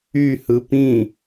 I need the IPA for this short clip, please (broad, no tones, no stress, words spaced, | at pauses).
y hɯpĩ